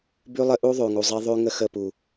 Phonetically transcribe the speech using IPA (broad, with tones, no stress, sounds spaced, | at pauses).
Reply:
b ʉ˦ lˠ ə˦ ʔ u˦ ðˤ ʉ˨ ŋ u˨ zˤ i˦ ðˤ ʉ˦ ŋ ə˦ x ə˦˨ p u˨